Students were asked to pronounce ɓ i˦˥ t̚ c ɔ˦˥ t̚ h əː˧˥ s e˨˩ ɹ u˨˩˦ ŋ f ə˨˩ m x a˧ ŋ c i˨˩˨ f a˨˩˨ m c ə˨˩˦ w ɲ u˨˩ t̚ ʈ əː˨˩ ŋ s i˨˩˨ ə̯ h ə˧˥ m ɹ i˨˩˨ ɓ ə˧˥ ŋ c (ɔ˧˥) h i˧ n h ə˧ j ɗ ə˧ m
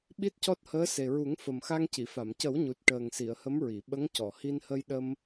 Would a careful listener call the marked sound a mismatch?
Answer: yes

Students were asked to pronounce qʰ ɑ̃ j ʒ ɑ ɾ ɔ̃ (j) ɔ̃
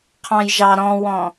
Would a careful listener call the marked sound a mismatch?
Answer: yes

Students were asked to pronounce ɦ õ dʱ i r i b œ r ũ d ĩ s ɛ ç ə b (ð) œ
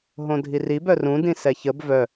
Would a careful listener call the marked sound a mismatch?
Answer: yes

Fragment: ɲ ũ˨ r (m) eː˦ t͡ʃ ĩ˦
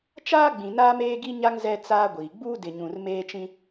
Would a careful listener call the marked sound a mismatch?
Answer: no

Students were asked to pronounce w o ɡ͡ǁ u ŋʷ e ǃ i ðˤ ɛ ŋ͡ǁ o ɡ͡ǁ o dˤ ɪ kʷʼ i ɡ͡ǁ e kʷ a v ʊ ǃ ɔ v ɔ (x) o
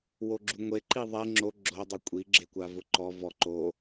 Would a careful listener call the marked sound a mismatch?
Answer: yes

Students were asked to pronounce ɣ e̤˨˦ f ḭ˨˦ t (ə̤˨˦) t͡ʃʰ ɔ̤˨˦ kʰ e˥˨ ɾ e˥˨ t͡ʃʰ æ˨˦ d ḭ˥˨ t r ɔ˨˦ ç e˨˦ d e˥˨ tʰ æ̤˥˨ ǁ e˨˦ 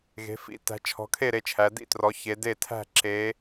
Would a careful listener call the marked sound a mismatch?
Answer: yes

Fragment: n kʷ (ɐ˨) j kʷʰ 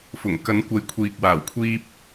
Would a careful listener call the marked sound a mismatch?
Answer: yes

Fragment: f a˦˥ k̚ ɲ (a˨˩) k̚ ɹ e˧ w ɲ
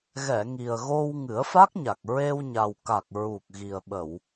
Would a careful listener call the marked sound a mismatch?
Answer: no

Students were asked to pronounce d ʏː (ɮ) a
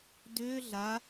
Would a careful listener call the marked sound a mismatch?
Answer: no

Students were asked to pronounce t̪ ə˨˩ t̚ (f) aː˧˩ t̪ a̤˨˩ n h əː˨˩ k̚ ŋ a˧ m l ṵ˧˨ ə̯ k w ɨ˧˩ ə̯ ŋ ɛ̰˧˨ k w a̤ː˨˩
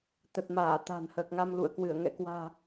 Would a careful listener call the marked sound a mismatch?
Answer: yes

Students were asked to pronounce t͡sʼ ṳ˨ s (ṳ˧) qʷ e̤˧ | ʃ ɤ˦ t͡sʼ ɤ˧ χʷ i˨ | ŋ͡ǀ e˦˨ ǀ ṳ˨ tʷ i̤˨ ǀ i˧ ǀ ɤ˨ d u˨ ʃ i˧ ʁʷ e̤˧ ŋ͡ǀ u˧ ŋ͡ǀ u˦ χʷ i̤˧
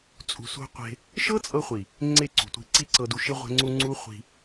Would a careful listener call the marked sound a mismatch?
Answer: no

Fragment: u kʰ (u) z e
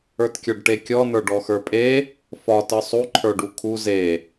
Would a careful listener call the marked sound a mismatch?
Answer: no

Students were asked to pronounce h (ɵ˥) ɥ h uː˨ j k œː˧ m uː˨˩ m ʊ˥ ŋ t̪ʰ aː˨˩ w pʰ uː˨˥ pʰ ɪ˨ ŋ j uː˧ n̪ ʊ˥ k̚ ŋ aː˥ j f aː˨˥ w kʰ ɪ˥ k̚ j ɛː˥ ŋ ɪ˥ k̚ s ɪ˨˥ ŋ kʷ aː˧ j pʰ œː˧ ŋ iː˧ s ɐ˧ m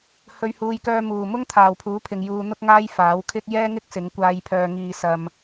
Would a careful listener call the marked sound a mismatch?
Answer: yes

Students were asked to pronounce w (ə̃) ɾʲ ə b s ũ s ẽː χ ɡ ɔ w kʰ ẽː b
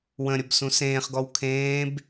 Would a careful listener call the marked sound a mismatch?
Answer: no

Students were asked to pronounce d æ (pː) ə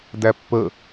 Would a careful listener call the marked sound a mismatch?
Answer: no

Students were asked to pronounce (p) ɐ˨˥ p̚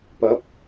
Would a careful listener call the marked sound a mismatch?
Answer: no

